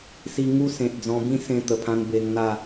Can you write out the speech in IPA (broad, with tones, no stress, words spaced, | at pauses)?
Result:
si˧ŋu˦sẽ˨t̚ d͡zɔ̃˧bĩ˥˧sẽ˧ t̪ə˨˩pʰã˧n be˧ŋn̪a˥˧